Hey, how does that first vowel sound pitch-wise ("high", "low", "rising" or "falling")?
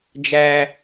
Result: high